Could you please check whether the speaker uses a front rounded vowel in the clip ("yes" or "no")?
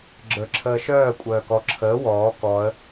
yes